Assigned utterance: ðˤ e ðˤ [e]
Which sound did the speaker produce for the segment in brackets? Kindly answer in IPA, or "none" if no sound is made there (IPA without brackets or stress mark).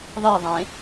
ẽ